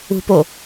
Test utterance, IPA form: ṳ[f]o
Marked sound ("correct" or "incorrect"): incorrect